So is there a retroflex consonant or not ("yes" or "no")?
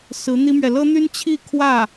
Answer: no